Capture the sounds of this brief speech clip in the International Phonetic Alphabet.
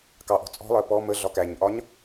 kɑʔɔ̤ t͡sʼɔ̤lˠɜ pɔ mə ɮɒkæɲʔɒɲ

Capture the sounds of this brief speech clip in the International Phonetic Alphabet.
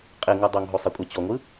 qʼeŋɯ dˤoŋɦo sˤekʷʼɛt͡ɕɔŋʷɯ

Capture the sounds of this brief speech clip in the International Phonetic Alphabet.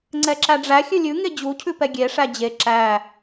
ŋ͡ǀɛǁæɖ͡ʐæ xʲʉlʲʉ ŋed͡ʑu cʰʉpɛɡʲe ʂæd͡ʑe ǁæ

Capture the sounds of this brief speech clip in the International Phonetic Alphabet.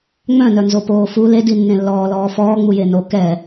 ŋ͡mœ̃nœnzo poːfu ledinːẽ lːɔːlɔːfɔː ŋ͡mujeno kɛ

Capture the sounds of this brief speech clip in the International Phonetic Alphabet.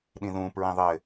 ɗĩðũpɹĩ ðˤɘ

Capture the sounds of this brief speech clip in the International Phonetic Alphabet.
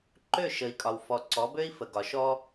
ǃø˦˨ ʃə˨i̯kʼɒ˨wfɔ˨ ǀɔ˨˦bø˦i̯fə˨ɡɒ˨ ʃɔ˦

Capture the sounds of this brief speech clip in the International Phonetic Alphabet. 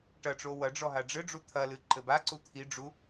ʈɐʈ͡ʂo wɐ ɖ͡ʐɔɦaɖ͡ʐɘɖ͡ʐu t̪ʰɐlɨ ǃɘbaǀu t̪ʰiɖ͡ʐu

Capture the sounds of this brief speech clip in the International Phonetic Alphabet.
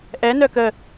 ʔɛnœ kə

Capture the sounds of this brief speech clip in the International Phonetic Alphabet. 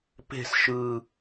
pe̤s ʃɯ

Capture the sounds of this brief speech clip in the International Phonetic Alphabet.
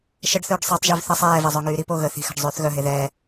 ʃəɖθøːɖ sˤetˤʒyv θə sˤɛːvɛzˤøŋyː ɾipo ɣə θi̤xa̤ɖzˤyːθ ɣœɦe ðɛː

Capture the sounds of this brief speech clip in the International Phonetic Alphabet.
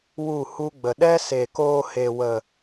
wu˦˨hu˦ɡ͡bə˨ ɗɛ˦se˨koː˧ he˨wə˨

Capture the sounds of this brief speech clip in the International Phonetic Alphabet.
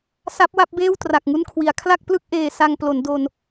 sa˦˥p̚wa˥˩p̚beː˥˩w tra˨˩k̚ŋu˥˩nkʰwi˩˦a̯ kʰla˥˩k̚plɯ˥˩k̚ ʔeː˧ sa˧ŋ plo˩˦ndo˧n

